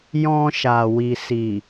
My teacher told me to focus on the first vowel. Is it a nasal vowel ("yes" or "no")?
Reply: yes